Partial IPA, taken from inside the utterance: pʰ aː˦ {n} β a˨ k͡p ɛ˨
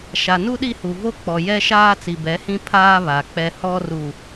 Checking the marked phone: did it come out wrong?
yes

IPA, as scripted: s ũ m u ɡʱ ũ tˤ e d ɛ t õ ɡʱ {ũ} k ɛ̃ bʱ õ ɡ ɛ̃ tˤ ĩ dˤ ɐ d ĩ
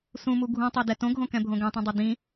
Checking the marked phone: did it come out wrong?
yes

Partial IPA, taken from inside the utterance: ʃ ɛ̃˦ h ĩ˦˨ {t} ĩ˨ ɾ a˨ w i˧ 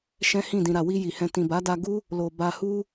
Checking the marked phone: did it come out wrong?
yes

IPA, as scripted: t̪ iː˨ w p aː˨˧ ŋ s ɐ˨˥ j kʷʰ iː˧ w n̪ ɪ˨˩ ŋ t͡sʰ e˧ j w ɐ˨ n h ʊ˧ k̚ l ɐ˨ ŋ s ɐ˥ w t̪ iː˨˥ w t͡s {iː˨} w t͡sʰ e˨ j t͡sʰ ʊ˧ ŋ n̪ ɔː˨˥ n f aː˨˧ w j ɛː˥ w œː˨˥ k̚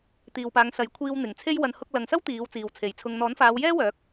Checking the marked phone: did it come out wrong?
no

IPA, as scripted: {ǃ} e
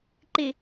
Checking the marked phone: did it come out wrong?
no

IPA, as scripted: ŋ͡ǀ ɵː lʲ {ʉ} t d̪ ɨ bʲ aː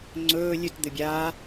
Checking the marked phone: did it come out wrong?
no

